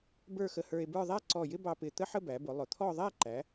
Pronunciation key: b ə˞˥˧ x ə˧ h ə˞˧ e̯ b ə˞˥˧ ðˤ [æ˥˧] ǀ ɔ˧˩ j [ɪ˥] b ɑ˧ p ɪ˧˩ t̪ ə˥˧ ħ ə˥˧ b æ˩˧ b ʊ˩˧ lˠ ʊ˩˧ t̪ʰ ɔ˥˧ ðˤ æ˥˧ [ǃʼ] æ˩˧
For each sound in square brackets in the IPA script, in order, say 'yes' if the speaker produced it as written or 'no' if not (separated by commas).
no, yes, no